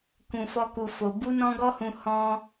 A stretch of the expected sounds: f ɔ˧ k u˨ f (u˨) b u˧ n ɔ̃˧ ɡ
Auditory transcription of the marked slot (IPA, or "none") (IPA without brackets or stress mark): o˨